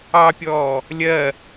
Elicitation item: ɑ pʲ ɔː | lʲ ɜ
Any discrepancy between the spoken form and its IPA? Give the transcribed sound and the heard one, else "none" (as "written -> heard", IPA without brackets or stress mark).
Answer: none